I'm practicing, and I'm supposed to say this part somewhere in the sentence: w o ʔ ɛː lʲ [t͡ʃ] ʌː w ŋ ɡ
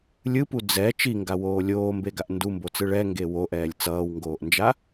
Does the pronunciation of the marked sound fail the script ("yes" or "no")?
yes